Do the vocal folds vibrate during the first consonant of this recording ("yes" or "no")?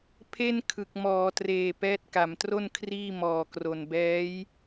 no